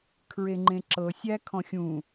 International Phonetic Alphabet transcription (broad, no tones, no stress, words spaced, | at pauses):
kʰɹeŋ͡ǃẽǁɤ sʲæ kʰɔ̃xʲũ